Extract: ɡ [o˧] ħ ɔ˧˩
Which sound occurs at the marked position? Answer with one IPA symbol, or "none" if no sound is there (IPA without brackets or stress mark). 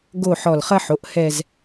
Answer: o˥˧